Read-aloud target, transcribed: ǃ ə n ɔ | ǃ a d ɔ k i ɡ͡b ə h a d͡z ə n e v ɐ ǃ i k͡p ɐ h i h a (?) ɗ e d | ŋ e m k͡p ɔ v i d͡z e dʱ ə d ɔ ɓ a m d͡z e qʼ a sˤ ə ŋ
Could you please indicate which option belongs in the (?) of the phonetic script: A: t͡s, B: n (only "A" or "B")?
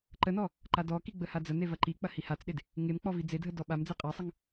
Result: A